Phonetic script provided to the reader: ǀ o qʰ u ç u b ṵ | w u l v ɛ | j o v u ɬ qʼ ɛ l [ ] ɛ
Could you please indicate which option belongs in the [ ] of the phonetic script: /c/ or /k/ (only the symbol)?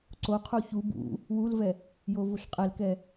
k